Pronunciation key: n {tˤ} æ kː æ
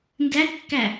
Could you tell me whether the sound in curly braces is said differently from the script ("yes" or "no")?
yes